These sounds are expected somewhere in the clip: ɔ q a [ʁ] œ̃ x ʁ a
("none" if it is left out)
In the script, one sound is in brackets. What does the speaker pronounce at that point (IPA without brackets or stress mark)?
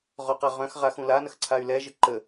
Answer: ʁ